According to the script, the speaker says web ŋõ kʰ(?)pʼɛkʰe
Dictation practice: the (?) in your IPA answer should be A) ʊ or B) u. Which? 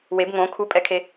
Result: B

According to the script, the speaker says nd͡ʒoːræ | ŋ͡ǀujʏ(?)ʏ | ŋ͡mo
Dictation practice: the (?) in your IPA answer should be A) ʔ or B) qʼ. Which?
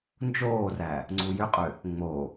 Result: B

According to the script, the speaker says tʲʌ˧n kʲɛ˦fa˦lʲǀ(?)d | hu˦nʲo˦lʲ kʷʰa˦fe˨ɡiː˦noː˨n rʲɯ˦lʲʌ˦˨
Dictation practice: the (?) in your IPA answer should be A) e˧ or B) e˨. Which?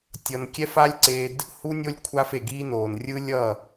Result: A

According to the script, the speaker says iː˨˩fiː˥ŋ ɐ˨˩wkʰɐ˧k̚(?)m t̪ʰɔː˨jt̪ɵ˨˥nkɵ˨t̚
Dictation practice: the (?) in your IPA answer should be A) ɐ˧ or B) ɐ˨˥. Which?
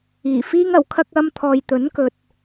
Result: A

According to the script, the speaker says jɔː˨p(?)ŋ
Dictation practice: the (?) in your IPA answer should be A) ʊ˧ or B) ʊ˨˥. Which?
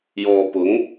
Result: B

